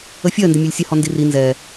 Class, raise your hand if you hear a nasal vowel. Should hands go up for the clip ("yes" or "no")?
no